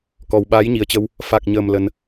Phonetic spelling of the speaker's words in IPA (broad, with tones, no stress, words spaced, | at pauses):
kɔ˨˩wɓaː˨˦jɲi˨˩ə̯t͡ɕə˧w | fa˨˩k̚ɲəː˨˩m lə˧n